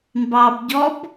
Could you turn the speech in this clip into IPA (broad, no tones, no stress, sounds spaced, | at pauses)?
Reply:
m b ɑ b ɟ ɔ b